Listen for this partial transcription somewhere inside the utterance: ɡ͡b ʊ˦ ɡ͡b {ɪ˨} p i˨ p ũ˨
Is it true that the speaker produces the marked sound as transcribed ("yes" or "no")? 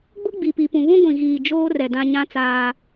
no